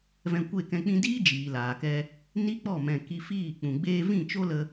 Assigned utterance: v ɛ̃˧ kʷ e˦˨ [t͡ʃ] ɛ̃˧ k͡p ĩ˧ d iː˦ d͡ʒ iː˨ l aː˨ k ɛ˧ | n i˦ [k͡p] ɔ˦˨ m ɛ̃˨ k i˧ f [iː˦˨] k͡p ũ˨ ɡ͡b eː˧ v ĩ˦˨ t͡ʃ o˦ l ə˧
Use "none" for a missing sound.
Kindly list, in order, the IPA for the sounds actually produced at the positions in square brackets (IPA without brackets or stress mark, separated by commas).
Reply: k, k͡p, iː˦˨